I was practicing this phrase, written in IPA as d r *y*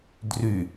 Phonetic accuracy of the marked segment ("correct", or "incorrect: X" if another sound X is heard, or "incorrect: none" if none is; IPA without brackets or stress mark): correct